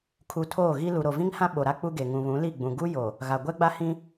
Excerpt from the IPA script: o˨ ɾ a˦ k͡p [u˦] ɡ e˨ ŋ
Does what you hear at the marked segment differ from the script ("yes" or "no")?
no